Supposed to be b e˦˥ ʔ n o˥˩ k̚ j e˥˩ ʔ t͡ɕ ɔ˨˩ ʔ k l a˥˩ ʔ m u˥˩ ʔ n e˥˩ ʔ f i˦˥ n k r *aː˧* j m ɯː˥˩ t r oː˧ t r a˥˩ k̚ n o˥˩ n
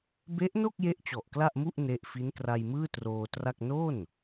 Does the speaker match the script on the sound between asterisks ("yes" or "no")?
no